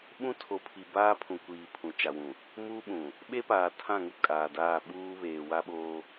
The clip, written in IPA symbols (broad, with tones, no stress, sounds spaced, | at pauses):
ɓ ũ˦ tʰ o˨ pʰ i˨ b aː˦ pʰ ũ˨ kʷ iː˨ pʰ ũ˨ t͡ʃ a˨ w ũ˨ | m uː˦ ɓ ũ˨ | ɓ e˦ p aː˨ tʰ ã˦˨ ŋ u˦ kʼ aː˨ d aː˦˨ ɓ uː˦ β eː˨ w a˦ ɓ oː˦